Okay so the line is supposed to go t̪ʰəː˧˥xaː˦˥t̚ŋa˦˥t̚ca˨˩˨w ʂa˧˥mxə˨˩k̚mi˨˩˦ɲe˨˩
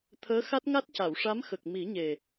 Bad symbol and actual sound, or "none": aː˦˥ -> a˦˥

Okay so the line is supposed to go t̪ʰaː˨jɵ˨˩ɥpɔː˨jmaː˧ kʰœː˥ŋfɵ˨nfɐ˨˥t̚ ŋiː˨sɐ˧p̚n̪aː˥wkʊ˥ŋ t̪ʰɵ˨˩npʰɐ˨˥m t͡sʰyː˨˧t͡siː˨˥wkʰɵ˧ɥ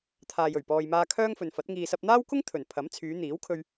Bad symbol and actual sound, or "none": t͡s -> n̪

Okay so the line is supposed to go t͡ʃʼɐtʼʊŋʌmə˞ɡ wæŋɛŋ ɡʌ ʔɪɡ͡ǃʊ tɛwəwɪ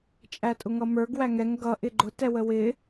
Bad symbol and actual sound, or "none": ɐ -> æ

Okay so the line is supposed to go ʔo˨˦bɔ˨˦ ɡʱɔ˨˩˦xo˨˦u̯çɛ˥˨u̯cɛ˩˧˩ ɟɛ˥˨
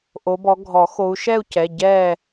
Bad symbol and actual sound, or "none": ç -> ʃ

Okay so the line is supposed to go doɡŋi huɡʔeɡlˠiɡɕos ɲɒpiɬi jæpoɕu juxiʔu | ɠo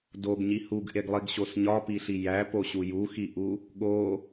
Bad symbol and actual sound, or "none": ŋ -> ɲ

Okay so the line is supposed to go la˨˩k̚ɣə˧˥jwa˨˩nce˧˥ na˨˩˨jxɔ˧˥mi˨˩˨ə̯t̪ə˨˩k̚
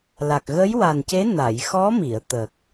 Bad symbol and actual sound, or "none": none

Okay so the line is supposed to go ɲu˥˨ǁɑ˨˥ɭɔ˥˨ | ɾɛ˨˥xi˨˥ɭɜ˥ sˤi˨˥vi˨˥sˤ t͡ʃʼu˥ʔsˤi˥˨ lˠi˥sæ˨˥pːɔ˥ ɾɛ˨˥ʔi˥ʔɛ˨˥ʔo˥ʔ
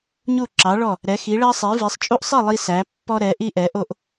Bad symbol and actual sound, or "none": none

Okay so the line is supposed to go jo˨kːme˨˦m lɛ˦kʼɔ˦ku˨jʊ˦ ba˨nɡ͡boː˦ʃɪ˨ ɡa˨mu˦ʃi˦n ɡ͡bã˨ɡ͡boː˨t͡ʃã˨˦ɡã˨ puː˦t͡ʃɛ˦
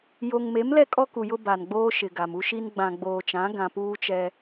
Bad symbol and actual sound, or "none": kː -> ŋ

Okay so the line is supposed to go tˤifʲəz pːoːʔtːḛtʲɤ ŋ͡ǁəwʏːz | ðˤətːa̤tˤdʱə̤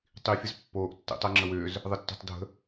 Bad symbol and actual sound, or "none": tʲ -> tˤ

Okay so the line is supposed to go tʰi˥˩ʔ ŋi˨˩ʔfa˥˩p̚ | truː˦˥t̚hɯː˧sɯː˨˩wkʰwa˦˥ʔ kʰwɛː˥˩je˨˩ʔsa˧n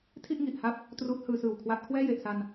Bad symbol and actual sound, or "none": f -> h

